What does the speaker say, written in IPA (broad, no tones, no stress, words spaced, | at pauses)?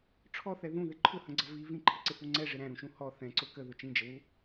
ʈ͡ʂʰɔθɛ ðũðɪ ǃʰʊhə̃ɡ͡ǀʌ vi vĩǃʰɪǀɪhu ŋ͡ǀɛʐɪ ɾæ̃ɾũʃũ hɔ θɛ̃ǀʊ kəðʊ t͡ʃĩd͡ʒəwu